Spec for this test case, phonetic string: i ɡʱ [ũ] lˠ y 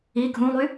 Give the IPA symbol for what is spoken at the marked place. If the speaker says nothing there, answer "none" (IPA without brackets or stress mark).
ũ